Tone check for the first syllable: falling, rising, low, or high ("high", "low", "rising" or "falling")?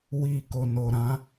low